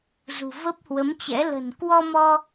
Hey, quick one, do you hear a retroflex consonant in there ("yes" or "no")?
no